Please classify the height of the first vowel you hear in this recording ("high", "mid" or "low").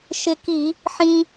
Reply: high